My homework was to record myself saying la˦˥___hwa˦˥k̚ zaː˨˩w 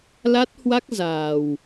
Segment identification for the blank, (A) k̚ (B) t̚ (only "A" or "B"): B